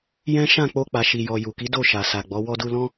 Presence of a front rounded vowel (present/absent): absent